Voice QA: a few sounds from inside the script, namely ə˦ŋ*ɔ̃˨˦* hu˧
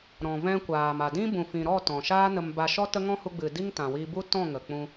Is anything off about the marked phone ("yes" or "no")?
yes